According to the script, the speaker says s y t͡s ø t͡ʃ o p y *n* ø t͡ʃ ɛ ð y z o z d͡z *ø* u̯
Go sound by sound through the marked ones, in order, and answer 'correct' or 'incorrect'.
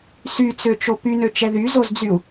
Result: correct, incorrect: y

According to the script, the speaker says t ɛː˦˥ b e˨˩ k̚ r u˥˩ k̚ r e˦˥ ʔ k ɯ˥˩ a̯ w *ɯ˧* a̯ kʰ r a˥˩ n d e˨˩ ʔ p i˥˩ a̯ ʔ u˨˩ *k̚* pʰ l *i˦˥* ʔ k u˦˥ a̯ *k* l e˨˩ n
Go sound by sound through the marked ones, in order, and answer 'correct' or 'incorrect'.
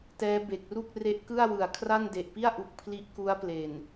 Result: incorrect: ɯ˨˩, correct, correct, incorrect: p

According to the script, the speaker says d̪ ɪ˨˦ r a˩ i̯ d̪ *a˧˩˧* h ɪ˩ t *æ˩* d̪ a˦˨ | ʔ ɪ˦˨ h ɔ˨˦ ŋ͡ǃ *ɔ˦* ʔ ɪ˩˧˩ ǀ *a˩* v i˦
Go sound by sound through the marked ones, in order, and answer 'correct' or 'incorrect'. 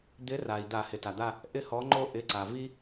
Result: correct, incorrect: a˩, incorrect: o˦, correct

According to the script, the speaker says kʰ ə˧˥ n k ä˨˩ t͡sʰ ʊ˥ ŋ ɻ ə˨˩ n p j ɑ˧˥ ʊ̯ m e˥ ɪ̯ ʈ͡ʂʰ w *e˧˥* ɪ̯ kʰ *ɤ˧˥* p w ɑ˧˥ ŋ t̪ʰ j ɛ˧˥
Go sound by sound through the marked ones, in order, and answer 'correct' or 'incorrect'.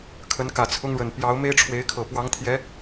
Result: correct, incorrect: ɤ˨˩

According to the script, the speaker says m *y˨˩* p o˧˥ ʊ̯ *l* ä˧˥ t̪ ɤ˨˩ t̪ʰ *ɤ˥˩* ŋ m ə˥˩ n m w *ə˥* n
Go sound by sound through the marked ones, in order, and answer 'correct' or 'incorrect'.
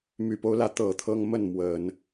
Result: correct, correct, incorrect: ɤ˥, incorrect: ə˨˩˦

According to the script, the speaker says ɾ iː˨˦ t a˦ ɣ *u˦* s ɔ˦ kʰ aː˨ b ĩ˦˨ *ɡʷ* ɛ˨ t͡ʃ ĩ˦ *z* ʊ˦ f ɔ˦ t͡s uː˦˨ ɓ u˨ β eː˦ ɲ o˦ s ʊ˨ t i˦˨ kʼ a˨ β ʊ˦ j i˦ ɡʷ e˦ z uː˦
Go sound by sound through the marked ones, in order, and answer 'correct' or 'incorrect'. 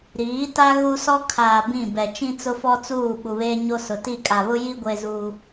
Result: correct, incorrect: b, incorrect: t͡s

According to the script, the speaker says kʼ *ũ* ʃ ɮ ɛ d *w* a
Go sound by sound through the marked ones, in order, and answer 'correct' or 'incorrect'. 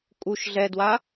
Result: incorrect: u, correct

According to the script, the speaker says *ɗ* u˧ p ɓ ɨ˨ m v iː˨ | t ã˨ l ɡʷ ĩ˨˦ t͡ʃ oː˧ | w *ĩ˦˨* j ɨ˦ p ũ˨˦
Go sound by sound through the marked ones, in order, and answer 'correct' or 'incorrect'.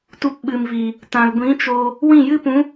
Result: incorrect: t, correct

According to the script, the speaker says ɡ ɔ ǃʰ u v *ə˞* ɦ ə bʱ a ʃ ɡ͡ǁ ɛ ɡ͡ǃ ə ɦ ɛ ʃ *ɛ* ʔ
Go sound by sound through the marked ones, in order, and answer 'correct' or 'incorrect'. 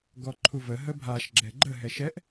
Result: incorrect: ə, correct

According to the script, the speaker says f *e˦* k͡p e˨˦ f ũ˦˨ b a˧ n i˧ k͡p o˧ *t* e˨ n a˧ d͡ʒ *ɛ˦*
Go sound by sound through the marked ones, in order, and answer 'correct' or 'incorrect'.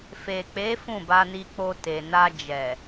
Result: incorrect: e˨, correct, incorrect: ɛ˨

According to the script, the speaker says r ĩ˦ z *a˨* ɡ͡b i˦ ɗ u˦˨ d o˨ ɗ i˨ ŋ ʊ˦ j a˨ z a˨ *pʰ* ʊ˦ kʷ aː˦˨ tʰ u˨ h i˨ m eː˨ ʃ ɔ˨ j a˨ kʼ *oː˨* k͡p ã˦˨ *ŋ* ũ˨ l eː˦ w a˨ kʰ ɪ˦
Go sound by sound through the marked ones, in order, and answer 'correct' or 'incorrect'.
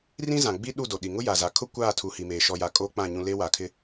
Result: incorrect: ã˨, incorrect: kʰ, incorrect: oː˦, incorrect: ɲ

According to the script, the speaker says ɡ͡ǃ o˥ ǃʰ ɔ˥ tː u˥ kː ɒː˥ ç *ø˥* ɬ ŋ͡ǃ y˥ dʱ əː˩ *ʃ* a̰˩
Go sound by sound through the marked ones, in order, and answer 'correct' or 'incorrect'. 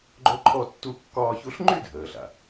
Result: incorrect: u˥, incorrect: ɬ

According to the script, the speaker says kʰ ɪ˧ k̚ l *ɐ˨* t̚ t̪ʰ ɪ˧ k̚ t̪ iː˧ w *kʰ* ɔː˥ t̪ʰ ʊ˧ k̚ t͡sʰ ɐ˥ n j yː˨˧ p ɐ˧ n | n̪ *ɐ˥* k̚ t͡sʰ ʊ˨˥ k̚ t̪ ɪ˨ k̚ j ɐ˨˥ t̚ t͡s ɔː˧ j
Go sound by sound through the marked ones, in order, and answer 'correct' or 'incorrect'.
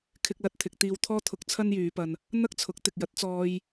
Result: correct, incorrect: t̪ʰ, correct

